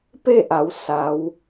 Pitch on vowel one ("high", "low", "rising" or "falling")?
falling